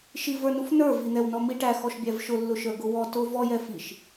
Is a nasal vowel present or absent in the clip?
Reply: absent